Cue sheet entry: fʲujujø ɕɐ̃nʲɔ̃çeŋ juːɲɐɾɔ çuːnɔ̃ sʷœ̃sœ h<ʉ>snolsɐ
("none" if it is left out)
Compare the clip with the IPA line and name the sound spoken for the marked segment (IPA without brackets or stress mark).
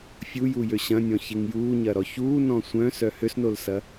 ø